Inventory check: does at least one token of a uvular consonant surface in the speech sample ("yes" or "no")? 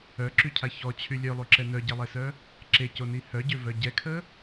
no